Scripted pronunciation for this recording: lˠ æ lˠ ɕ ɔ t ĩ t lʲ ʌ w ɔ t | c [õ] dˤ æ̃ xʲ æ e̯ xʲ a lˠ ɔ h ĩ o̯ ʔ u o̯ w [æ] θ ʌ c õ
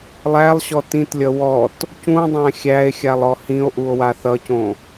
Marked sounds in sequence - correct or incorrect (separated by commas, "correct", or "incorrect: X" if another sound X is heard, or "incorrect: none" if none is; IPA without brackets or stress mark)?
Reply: incorrect: ũ, incorrect: a